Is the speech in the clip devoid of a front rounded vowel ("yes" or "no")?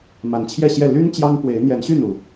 no